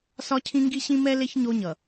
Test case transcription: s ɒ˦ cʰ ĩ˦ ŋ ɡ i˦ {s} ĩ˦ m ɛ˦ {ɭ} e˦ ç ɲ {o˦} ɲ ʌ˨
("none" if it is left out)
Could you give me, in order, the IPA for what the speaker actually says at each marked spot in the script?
ɕ, l, o˦

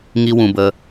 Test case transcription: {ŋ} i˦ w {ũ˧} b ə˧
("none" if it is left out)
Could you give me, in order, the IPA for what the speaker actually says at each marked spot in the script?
ŋ, ũ˧

